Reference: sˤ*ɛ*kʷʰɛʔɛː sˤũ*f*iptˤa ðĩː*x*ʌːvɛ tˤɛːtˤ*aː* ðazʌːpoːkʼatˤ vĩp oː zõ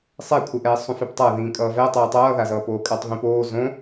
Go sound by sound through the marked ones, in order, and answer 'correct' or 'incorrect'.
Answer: incorrect: e, correct, incorrect: kʼ, incorrect: ʌː

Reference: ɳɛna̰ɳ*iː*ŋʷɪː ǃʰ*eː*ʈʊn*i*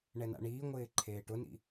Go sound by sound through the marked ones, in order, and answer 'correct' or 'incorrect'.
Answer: correct, correct, incorrect: ḭ

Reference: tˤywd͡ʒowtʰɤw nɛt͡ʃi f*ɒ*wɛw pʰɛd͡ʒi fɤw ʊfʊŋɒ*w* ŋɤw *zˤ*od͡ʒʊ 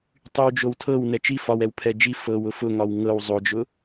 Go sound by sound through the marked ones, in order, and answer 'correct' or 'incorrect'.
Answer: correct, correct, correct

